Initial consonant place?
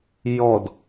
palatal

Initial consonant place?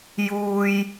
palatal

